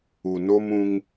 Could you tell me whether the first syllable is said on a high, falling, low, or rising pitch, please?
low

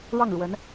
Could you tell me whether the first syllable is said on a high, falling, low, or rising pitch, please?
falling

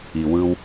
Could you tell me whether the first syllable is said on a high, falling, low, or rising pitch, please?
low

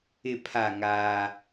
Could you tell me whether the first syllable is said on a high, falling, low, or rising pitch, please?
low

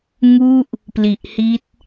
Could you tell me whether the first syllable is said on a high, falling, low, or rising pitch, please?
falling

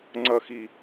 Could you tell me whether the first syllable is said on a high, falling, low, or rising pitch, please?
low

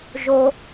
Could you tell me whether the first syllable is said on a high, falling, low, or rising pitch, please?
low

